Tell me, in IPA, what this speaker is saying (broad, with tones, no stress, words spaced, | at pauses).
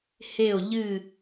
he˧˩o̯ʎɨ˧˩